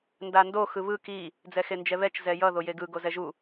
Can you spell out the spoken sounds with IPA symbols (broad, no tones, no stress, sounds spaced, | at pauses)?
n d a n d o x ɯ β ɯ k i | d͡z ɛ x e n d͡ʒ ɛ β ɛ t͡ʃ z ɛ j ʌ ð o j e ɡ ɯ ɡ o z ɛ ʒ u